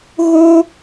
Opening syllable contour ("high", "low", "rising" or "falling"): high